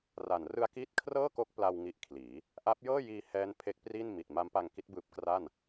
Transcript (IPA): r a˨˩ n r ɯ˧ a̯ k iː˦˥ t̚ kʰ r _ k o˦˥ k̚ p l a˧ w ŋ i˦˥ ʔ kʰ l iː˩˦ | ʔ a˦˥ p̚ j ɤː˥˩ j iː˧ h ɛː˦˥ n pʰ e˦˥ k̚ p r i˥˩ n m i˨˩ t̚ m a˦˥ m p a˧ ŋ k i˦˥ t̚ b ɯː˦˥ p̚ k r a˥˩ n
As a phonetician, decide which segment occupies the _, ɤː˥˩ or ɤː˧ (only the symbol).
ɤː˥˩